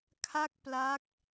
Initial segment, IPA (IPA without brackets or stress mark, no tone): kʰ